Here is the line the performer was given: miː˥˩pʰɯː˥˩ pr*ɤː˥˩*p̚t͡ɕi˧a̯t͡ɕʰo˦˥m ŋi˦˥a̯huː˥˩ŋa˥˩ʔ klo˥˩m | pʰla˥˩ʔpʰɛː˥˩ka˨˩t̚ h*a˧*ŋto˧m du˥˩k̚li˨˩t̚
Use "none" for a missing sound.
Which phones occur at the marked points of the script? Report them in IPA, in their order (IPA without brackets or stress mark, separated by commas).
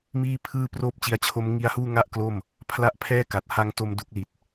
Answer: oː˥˩, a˧